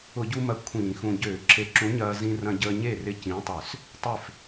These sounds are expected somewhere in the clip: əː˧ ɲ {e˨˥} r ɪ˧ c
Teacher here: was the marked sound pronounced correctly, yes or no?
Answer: no